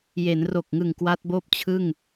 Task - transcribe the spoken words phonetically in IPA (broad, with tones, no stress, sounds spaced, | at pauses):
j e˩˦ n r o˨˩ k̚ ŋ ɯ˨˩ ŋ k w a˦˥ t̚ b oː˥˩ p̚ t͡ɕʰ ɯ˥˩ ŋ